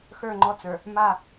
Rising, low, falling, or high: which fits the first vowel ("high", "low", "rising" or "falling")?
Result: falling